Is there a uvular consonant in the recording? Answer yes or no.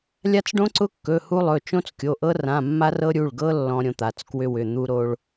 no